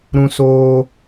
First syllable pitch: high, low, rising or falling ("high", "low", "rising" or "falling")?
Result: high